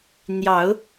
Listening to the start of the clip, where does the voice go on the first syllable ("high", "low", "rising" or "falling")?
rising